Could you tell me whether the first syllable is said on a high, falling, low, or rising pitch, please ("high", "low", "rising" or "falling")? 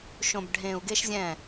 low